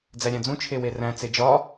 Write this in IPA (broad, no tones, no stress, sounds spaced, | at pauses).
d͡z æ ɾʲ æ̃ d͡z ũ t͡ʃʰ e w e r æ̃ t͡s e d͡ʒ ɒ